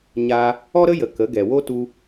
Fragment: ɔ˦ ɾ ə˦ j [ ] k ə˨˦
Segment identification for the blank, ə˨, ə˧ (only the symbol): ə˨